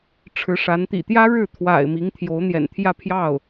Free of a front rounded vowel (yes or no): yes